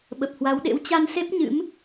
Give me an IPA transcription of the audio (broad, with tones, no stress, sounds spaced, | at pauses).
ɓ ə˨˩ p̚ h w a˨˦ w ɗ ḛ˧˥ w t͡ɕ a˧ n s e˦˥ p̚ ɲ ɨ̰˧˥ m